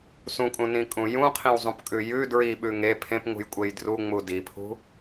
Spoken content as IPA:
sũkʼũnĩkʼũ jũqʰĩwzˤũpkʼʉ jʉ dɹiɓʉ ŋe pʰẽpŋṳjkʷʼej druŋ͡mu dipʰṳ

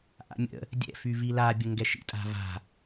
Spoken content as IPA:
ʔa̰mʲə̰ | dʲɛ̰fyvi labʲə ŋɡɛʃḭ tʼa̤va̤

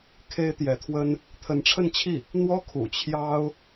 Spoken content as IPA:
kʰe˥ɪ̯t̪jɛ˧˥t̪ʰwə˥n | t̪ʰə˧˥nʈ͡ʂʰə˥˧nt͡ɕʰi˥˩ | n̪wɔ˥kʰṵ˨˩ t͡ɕʰjɑ˥ʊ̯

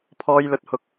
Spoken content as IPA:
pʰɔː˥jlɵ˥t̚hʊ˥k̚

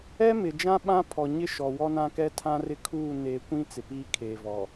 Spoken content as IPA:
ɛ˦mɪ˨d͡ʒã˦ ɓã˦ pʰɔ˨ɲɪ˦ʃɔ˨ wɔ˦nã˦kɛ˦ tʰã˦rɪ˦kʰuː˦˨ ne˨˦kʷĩ˦ t͡sɪ˨piː˦ kʰeː˨ vɔ˨

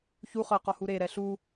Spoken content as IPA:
çu χɤ qɔhuɾe ɾɛɬu

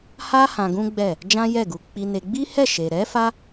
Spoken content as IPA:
ha˦ hã˧ɡũ˦ɡ͡bɛ˦˨ | d͡ʒã˦jɛ˦˨ɡu˧ k͡pi˧ne˧ ɡ͡bi˦hɛ˦˨ʃe˨ɾɛ˨˦ fa˦

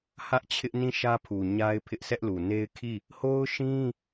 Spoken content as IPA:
hä˦ʔt͡ɕʰɪ˦ʔ nĩ˦˨ʃä˦pʰu˨ ɲa˦ɪ̯pʰɪ˦ʔsʰɛ˦ʔlu˨ ne˦ɪ̯kʰi˦˨ | ho˦ʊ̯ʃĩ˦

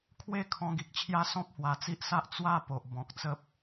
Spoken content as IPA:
kʰwe˥˧ kʰɔ̃˧ɡi˨k̚t͡ɕʰja˦ sɔ̃˦p̚hwa˧t͡si˦ʔsa˦ʔ t͡swa˥˧po˨ʔ bɔ̃˨k̚t͡sə˦p̚

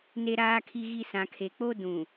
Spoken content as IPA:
ne˨ɾaː˨kʰi˨ɣi˨ sã˨kʰe˨k͡po˦ dũ˨

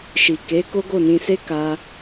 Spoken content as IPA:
ʃi˨ke˨˦ ko˦ɡo˦˨nĩ˧se˦ ka˧

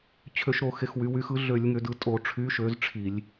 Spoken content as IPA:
t͡ɕʰø˧˩˧ʃɾo˧˩˧ xe˩˧xwy˩˧wy˨˥xɯ˨˥ ɮø˧˩˧lʲŋø˩˧dɯ˩˧ tʼo˧˩˧ʈ͡ʂʰy˨˥ ʃø˨˥zʈ͡ʂʰi˧˩˧lʲ

